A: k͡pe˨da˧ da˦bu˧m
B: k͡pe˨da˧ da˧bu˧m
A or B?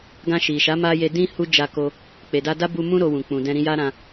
A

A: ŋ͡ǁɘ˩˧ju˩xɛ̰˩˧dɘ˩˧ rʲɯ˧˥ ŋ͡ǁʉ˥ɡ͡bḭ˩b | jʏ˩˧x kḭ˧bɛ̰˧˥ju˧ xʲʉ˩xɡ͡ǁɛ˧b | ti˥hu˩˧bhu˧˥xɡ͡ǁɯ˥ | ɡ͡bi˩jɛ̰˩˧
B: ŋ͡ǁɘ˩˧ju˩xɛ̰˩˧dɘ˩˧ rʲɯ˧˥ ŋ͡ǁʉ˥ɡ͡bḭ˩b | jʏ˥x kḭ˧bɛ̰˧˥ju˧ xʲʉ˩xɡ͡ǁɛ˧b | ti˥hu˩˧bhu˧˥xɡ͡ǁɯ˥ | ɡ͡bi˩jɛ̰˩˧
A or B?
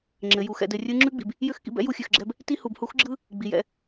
B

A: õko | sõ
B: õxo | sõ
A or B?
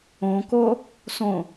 A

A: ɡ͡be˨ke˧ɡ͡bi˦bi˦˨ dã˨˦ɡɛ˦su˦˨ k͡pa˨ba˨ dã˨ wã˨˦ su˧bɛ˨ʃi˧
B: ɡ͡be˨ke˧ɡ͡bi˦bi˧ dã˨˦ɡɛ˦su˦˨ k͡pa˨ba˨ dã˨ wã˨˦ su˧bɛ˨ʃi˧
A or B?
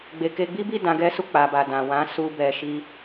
A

